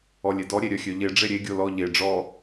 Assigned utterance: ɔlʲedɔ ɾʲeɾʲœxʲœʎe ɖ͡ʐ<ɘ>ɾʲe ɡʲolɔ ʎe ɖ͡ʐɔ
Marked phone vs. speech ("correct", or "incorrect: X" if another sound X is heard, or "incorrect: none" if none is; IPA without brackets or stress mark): incorrect: e